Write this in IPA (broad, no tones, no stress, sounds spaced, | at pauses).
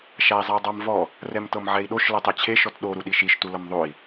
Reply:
ʃ a i̯ zˤ a dˤ a m v ɔ | r ɛ m t ɤ m ʕ ɛ i̯ ɗ o ʃ l ɤ tˤ e t͡ɕʰ e ʃ ɔ t ɗ o ɾ u ɗ i ʃ i ʃ t u l ɤ m ðˤ o i̯